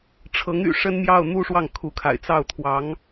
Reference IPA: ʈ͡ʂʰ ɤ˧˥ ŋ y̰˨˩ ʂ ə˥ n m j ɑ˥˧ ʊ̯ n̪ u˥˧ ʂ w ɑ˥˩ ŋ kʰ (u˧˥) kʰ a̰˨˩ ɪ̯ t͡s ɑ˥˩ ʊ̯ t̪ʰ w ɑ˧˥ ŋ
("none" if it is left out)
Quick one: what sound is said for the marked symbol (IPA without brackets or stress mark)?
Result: u˧˥